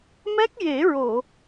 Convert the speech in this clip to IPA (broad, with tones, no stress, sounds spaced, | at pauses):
m ɛ˦˥ k̚ j e˨˩˦ ɹ o˨˩˨